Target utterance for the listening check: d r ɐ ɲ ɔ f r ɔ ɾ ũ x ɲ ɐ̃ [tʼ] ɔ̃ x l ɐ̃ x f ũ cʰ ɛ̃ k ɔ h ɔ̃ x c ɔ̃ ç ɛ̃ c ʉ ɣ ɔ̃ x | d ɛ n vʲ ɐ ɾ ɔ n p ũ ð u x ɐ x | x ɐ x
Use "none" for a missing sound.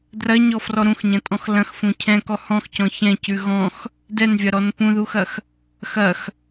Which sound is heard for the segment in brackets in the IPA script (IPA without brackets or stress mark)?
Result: tʼ